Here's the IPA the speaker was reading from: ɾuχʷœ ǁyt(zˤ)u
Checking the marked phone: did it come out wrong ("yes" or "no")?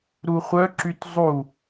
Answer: no